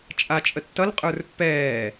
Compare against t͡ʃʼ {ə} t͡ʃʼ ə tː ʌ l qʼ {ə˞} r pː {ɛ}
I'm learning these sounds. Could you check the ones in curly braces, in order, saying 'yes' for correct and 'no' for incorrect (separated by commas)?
no, yes, no